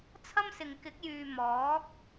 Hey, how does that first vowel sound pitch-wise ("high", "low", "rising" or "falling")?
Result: high